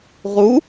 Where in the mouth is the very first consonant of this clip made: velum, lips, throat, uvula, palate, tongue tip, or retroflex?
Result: uvula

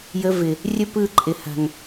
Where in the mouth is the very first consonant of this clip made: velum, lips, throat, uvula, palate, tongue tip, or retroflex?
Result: palate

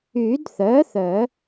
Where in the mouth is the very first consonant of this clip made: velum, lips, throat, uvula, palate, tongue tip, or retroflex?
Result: tongue tip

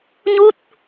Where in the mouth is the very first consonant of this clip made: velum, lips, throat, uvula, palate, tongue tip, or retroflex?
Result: palate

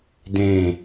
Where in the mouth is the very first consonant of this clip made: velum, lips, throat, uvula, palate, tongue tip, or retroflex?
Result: tongue tip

